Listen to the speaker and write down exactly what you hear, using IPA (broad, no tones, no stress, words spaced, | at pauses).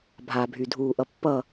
bʱabʱydʱuːʔʌ pːʌ